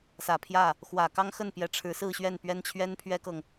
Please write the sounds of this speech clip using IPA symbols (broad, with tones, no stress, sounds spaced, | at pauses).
s ä˨˩ pʰ j ä˥˩ | x w ä˨˩ k ɑ˥ ŋ x ə˥˩ n p j ɛ˧˥ ʈ͡ʂʰ ɻ̩˧˥ s ɹ̩˥˧ ɕ ɥ ɛ˥˩ n p ɥ ɛ˥ n t͡ɕʰ ɥ ɛ˥ n pʰ ɥ ɛ˥ k ɤ˨ ŋ